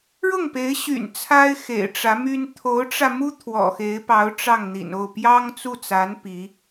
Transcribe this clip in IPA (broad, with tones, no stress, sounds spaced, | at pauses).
ɻ ʊ˥˩ ŋ p e˧˥ ɪ̯ ɕ y̰˨˩ n t͡sʰ a˥ ɪ̯ x ḛ˨˩ ɪ̯ ʈ͡ʂ ä˧˥ m y˥ n t̪ʰ o˧˥ ʊ̯ ʈ͡ʂ ä˧ m u˥ t̪ʰ w ɔ̰˨˩ x e˧˥ ɪ̯ p ɑ˧˥ ʊ̯ ʈ͡ʂ ɑ˥˩ ŋ n̪ ḭ˨˩ n o˥˩ ʊ̯ p j ɑ˥ ŋ t͡s u˥˩ t͡s a˧˥ n p i˧˥